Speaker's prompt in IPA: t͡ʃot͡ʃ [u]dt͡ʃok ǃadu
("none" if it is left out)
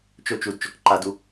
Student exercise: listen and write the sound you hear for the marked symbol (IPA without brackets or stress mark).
u